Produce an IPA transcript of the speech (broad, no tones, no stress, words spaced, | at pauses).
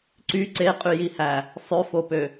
ǀy ǀeqʼyjihæ | sˤøfopø